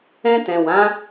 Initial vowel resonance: nasal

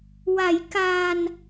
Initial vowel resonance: oral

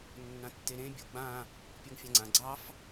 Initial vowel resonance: nasal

